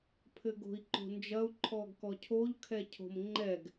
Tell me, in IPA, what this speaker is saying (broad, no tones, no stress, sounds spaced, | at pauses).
pʰ ɘ ɡ o̤ i̯ ǃ o̤ n d͡ʒ ɐ u̯ ǃʰ ɔ ɡ k ɔ cʰ o ʎ kʰ ɛ cʰ o̤ m ŋ͡ǃ ɛ ɡ